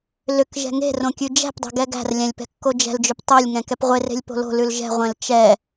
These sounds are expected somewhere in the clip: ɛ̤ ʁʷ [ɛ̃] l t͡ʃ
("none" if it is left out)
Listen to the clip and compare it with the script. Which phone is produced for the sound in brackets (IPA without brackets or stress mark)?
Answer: ɛ̃